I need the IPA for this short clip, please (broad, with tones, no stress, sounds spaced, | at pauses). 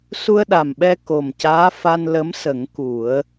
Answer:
s u˧ ə̯ ɗ a˨˩ m ɓ ɛ˧ k o˨˩ m c aː˧˥ f a˧ n l ə˧˥ m s ə˨˩˦ ŋ k u˨˩˦ ə̯